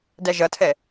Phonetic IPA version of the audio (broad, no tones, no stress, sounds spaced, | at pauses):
d æ ʒ ʌ tʰ ɛ